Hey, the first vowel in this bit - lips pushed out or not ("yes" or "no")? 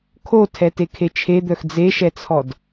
yes